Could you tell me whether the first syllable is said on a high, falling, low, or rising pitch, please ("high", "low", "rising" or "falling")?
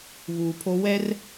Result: low